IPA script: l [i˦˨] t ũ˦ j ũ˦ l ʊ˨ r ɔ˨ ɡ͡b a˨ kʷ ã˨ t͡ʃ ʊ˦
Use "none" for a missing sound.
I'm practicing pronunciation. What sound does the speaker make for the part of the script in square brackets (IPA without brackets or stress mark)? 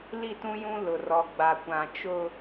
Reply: i˦˨